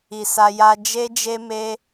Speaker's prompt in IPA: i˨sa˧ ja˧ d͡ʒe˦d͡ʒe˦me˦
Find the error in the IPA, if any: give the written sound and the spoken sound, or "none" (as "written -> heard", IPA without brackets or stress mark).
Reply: none